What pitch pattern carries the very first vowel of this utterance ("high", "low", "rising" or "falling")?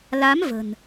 rising